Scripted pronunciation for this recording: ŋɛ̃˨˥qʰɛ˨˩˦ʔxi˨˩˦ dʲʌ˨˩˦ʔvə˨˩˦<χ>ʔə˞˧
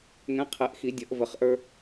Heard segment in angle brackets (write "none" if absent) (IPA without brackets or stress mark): χ